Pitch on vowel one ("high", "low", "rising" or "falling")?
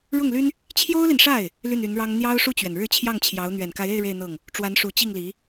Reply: falling